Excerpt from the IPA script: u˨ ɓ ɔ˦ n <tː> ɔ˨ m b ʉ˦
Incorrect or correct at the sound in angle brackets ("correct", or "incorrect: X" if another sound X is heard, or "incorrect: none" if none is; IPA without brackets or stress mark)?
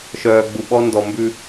incorrect: d